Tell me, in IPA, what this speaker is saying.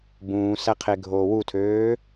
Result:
bũːsæqʰeɡʱoː wutʰøː

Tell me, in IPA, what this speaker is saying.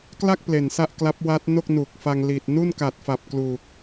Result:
kla˥˩k̚ ple˨˩nsa˥˩ʔ kla˦˥p̚wa˦˥t̚no˥˩k̚ nu˨˩k̚fa˧ŋ li˨˩t̚ nu˥˩nka˨˩t̚fa˨˩p̚ kluː˨˩k̚

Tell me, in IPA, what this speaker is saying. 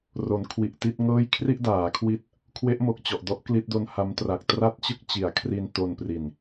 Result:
ro˩˦nkʰwi˨˩ʔti˥˩t̚ŋɤː˥˩j kʰri˥˩ʔdaː˩˦kʰwi˦˥t̚ | kʰwe˦˥ʔmo˨˩k̚t͡ɕɔ˨˩ʔdɔ˦˥ʔ kli˦˥t̚do˦˥nha˦˥mtra˨˩k̚ tra˥˩t̚t͡ɕɯ˥˩k̚t͡ɕi˩˦a̯ kʰri˧nto˧npri˨˩n

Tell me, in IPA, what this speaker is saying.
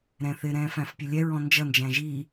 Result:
ɾɛ̃θɪ ɾɛ̃ːfæ̃fpʲʊlʲɛ ɹɔ̃nd͡ʒʌ nd͡ʒæ̃ʒi

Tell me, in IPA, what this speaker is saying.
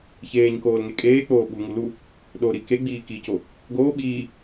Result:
çeːɲkoːlŋe kʼeːk͡poː ɓuŋu lu | ɗoɾi keɡ͡biː kico | ɡoː ɓiː

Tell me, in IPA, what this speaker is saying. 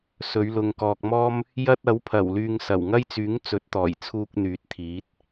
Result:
sɵ˨˧ɥlʊ˨ŋkɔː˨k̚mɔː˥m | jɐ˥t̚ɐ˨˥wpʰɐ˨˩w lyː˧ŋsɐ˨˩w ŋɐ˥jt͡syː˨˥ŋ t͡sɵ˨˥t̚t̪ɔː˨˩jt͡sʰuː˧k̚ n̪yː˨˥t̚t̪ʰiː˨˥t̚

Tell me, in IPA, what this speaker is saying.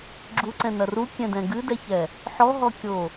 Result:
ɡ͡ǁuǀɛ̃nɐ rukʲɛ̃dɛ̃ ɡɨdɛçɛ | ħɔɦɔkʲo

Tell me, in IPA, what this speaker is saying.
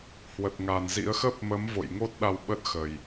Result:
hwə˨˩t̚ŋa˨˩nzḭ˧˥ə̯ xə˦˥p̚mə˨˦mvo̰˧˨j ŋo˦˥t̚ ɗa˧wɓə˦˥t̚xə˨˩j

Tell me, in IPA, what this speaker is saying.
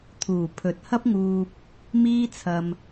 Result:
t̪ʰuː˨˩ pʰɵ˨t̚hɐ˥p̚ŋuː˧p̚ | miː˥t͡sʰɐ˧m

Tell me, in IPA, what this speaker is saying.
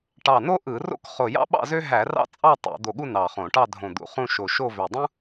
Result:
ʈɑ˧˩no˥ʔɯ˧˩˧ro̰˥˧k χo˧˩jɑ̰˥ɓɑ̰˥˧zø˥ ɦæ˧˩˧ rɑ̰˥ t͡sʼɑ˥˧ tˤo̰˧˩˧ d̪o˧˩ɠu˥˧ nɑ˧˩χõ˧˩˧ ʈɑ˥˧ dʱõ˧˩d̪ṵ˧˩χũ˥˧ʃo˧˩ ʃo˥˧vø˧˩ dˤũ˥

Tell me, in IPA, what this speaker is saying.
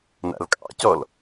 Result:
na̰lkʼɑ̰cɔl

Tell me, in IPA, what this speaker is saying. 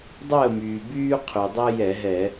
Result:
dˤəː˥˨myː˩ byː˦qʰy˩dˤɛ˦ jɛ˧˩˧ɦɛ˧˩˧

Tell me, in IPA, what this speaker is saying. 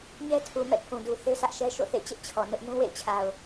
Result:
ɲɛ˦tʰu˨ mɛ̰˦˨pʰũ˨du˨ θe˦sä˦ʔʃɛ˦ ʃo̰˦˨θḛ˦˨ t͡ɕɪ˦ʔt͡ɕʰɔ˨ nʊ˦ʔ nũ˦wḛ˦˨ɪ̯ t͡ɕʰa˨ʊ̯

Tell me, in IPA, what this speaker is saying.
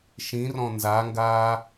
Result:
ʃĩrɔ̃ nzaŋɡaː

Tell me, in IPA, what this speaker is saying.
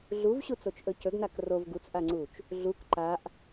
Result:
ɮuvɕut͡sot͡ʃʔɵ cɵɡnak rov ɡut͡sʔaŋ͡ǀut͡ʃ | ɮuk ǃaʔ

